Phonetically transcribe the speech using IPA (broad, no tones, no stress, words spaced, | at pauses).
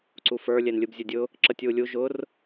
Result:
ǀufə˞ lʲɛnlʲɯbzʲʊdʲʊ | ǁətʲ wulʲu ʒʊr